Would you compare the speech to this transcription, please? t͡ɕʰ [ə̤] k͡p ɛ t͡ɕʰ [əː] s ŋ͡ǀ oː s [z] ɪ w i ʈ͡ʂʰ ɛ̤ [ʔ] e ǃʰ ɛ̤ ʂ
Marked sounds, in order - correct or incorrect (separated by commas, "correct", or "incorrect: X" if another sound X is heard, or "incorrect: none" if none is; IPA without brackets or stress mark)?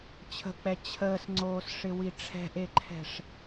correct, correct, incorrect: ʂ, correct